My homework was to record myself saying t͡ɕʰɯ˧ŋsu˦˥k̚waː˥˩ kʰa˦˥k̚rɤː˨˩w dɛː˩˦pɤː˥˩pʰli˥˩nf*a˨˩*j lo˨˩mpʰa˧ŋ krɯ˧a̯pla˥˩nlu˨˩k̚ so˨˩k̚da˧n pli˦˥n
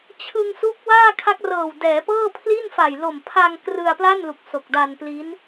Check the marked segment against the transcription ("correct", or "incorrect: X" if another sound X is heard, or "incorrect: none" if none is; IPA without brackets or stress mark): correct